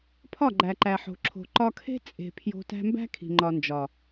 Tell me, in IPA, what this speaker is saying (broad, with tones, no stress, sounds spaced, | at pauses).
pʰ ɒ˦˨ ɡ͡ǃ æ˨ ǃ æ˨ ħ o̤˨ ǁʰ o̤˨ ǃ ɒ˧ kʰ e̤˦ t͡sʼ e̤˨ pʰ j o̤˧ t æ̤˧ m b æ̤˦ kʰ i̤˨ ŋ͡ǃ ɒ˨ n d͡ʒ ɒ˨